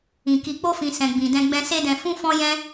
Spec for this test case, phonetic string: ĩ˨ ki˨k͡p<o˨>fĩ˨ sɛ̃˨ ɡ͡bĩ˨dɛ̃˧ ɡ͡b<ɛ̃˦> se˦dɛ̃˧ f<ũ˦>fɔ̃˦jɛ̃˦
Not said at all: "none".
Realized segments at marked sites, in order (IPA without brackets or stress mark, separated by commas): o˧, ɛ̃˦, ũ˦